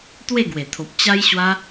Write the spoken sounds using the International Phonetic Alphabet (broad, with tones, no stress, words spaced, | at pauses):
t̪we˥˧ɡwe˨˩ t̪ʰo˨p̚t͡ɕa˦j ɕwa˦